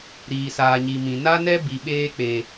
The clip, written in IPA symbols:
ɾ iː˨ s aː˨ ɲ i˨ m ĩ˨ n a˦ n ɛ˦ b i˨ ɓ eː˦ k͡p e˨

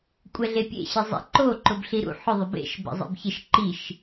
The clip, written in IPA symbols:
kʷʼ ɛ ɮ e pʲ ḛ ɕ ɪ zˤ ɛ̰ ǃ o ǃ ʊ b ɬ i ɾ ṵ ħ ʊ ðˤ ʊ b ḛ ʃ b ɛ̰ zˤ ḛ b ç ɪ ʃ ǃ i ʃ

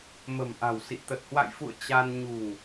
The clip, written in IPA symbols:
m ə̤˨˩ m ʔ a̤˨˩ w s ḭ˧˨ t̪ ə˨˩ t̚ h w a̰˧˨ j f ṵ˧˨ ə̯ t͡ɕ a˧ n ɲ ṳ˨˩ ŋ

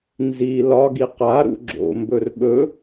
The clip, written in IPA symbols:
n z i l ɒ ɡ i q a ɾ ṵ ɡ͡ǁ o̰ m b ɵ r ɓ ɵ

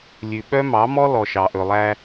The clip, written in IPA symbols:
lʲ ʉ˨ ɓ œ˦ m ɑ˨˦ m ɔ˦ l ɔ˨ ʃ ɑ˨ ʔ ɵ˨ lˠ æ˦

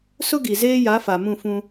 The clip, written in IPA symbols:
s ʊ˦ ɡ i˨ z eː˦ j a˨˦ f a˨ m ũ˦˨ f ũ˦

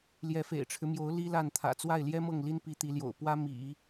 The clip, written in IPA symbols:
l j ɛ˧˥ f ḛ˨˩ ɪ̯ ʈ͡ʂʰ ɻ̩˦ m j o˧˥ ʊ̯ l i˥ l a˥˩ n t̪ʰ ä̰˨˩ t͡s w a˥˩ ɪ̯ l j ɛ˥ m ɤ˥˩ ŋ l i˥ n p i˧˥ t̪ i˧˥ l j o̰˨˩ ʊ̯ p w ä˥ m ḭ˨˩˦

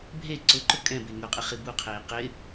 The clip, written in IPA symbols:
bʱ e ǀ ʊ ǃ ʊ kʼ ɛ̃ b e ŋ ʊ qʼ ɪ χ i b u qʰ eː q ɪ

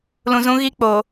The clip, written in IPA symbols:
l ũ˨ z ũ˦ ɣ i˦ k͡p o˨

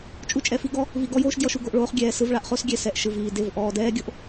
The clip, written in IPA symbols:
t͡ʃʼ u˦ t͡ʃʼ ɛ˧ f i˦ ɡ ɔ˦ | v i˧ ɡ ɔ˦ j oː˦ ʃ d j ɔ˧ ʃ u˧ ɡ o˨ ʔ ɭ oː˧ χ ɡʲ ɛː˨ s ɯ˧ v ɭ a˧ ʔ χ o˦ s ɡʲ ɛ˨ s ɛ˧ ʔ ʃ ɯ˨ v iː˨ d e˦˨ v ʔ ɔː˨ d ɛː˦ ɡʲ o˦ ʔ

